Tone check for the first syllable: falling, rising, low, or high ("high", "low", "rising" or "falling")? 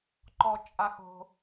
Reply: high